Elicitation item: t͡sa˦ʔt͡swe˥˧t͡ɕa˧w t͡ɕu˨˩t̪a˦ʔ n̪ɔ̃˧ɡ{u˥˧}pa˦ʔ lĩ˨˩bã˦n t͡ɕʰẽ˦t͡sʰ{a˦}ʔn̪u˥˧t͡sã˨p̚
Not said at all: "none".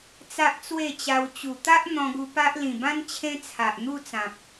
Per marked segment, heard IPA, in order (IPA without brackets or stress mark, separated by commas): u˧, a˨